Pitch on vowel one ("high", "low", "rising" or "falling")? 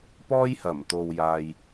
high